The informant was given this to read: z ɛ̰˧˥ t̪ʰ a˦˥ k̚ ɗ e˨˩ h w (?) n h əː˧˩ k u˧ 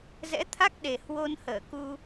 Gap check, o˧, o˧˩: o˧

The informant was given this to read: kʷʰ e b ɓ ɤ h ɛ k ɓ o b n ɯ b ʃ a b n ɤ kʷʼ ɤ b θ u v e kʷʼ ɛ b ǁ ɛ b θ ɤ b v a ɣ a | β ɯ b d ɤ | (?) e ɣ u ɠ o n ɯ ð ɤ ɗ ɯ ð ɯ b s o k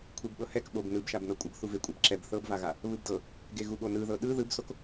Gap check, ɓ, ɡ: ɡ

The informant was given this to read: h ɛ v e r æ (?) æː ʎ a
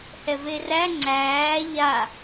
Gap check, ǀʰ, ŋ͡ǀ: ŋ͡ǀ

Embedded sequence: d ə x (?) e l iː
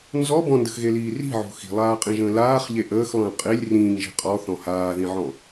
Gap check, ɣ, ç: ɣ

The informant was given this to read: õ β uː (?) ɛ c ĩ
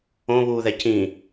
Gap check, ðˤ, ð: ð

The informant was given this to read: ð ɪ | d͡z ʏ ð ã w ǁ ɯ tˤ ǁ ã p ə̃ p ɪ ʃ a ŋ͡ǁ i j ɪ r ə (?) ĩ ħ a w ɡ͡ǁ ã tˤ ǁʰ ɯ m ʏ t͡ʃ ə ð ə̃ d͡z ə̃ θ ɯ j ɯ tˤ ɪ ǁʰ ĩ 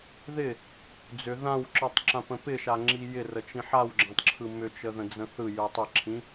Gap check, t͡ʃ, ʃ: t͡ʃ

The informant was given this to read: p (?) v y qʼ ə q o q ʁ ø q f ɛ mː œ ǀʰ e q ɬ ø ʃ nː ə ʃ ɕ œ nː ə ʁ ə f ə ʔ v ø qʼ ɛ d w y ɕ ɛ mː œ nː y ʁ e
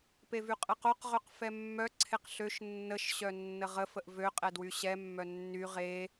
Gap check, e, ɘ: e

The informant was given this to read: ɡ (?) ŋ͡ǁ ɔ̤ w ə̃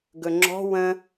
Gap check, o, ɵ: ɵ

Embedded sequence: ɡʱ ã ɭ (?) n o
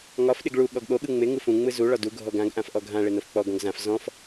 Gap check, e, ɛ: e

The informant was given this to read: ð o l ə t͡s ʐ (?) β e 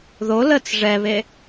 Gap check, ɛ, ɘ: ɛ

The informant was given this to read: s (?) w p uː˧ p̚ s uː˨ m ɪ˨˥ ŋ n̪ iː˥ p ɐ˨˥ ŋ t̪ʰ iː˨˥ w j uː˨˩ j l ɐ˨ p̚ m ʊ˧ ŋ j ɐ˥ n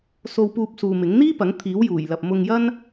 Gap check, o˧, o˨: o˧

